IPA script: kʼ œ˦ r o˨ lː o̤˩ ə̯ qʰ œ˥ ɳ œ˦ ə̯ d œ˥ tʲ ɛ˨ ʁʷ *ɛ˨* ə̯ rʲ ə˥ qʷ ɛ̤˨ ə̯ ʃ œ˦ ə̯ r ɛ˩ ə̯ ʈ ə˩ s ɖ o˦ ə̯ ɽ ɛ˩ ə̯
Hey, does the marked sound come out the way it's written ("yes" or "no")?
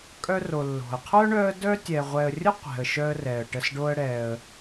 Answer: yes